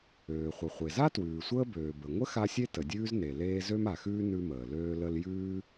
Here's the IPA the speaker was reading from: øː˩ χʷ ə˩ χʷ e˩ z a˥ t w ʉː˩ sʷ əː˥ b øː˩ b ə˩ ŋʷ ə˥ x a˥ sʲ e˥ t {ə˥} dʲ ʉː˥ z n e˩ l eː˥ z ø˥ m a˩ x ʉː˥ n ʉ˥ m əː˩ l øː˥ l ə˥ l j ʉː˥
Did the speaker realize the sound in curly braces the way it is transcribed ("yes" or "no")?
no